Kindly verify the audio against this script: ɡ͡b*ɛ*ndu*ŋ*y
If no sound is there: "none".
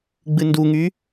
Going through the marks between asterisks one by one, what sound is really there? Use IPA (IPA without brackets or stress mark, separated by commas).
ɨ, ŋ